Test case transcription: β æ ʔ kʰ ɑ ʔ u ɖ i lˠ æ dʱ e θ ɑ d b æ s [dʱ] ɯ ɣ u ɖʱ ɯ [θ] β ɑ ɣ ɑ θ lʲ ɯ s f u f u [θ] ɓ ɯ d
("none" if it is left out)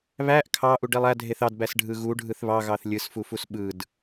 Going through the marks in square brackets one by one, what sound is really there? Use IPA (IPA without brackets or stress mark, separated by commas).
ɖʱ, θ, s